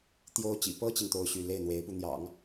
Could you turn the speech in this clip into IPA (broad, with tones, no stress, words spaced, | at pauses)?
t̪jo˧˥ʊ̯t͡ɕḭ˨˩ pɤ˥t͡ɕi˨ŋ t̪o˥ʊ̯ɕy˥˧ le˥˩ɪ̯n̪we˧˥ɪ̯pu˧n̪jɑ̰˨˩˦ŋ